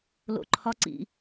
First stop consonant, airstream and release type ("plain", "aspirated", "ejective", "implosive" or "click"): click